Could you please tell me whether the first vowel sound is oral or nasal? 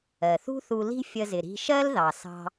oral